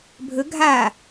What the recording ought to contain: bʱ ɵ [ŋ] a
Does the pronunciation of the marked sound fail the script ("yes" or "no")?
yes